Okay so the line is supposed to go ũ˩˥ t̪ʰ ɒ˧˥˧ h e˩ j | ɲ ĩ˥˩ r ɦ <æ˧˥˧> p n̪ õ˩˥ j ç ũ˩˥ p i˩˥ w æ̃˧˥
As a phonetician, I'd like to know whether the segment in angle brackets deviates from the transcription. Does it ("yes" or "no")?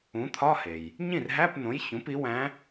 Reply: no